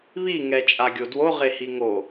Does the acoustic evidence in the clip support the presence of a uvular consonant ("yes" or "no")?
yes